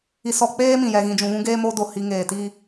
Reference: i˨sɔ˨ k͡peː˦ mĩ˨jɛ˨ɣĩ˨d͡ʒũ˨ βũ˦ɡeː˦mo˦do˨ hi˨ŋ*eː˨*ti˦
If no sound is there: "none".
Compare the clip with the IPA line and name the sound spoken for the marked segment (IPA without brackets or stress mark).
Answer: eː˨